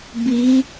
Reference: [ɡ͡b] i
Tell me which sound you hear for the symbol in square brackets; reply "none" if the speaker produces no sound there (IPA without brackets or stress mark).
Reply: b